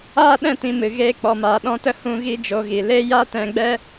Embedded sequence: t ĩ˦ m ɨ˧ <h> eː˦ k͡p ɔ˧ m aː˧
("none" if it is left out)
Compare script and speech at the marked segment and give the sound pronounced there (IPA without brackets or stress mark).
ɣ